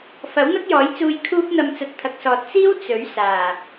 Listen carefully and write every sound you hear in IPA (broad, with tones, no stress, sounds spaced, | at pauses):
f ɐ˨˥ w n̪ ɐ˥ k̚ j ɔː˨˥ j t͡s uː˧ j kʰ uː˧ p̚ n̪ ɐ˨ m t͡s ɐ˨ t̚ t̪ʰ ɐ˨ k̚ s ɔː˨ t̚ t͡s iː˥ w t͡s ɵ˨˥ ɥ s aː˨˩